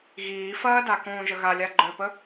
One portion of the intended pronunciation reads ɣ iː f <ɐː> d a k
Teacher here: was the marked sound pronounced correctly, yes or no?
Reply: yes